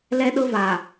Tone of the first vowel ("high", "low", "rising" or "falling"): high